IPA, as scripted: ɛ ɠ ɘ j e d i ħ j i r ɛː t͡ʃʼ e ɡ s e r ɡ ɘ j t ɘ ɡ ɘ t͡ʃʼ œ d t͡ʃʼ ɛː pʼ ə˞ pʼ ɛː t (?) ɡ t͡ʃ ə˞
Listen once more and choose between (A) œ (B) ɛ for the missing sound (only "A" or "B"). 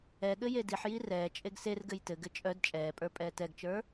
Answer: B